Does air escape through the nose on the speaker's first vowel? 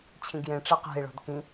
yes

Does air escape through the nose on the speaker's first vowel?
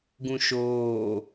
yes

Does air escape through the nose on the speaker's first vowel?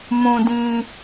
yes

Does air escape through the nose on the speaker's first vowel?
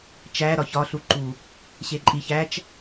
no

